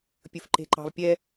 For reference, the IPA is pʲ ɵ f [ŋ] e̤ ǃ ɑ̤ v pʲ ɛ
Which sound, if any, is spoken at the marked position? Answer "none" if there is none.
ǃ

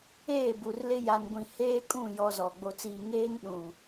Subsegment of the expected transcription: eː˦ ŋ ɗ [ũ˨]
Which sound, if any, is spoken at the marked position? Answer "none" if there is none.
ũ˨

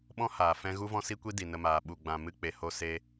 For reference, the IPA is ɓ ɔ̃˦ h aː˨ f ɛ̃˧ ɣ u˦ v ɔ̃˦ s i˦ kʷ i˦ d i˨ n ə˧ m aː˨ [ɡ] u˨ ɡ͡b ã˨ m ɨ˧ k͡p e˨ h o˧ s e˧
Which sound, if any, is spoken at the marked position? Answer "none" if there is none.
ɓ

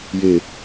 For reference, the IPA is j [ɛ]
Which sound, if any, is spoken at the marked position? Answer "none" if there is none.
e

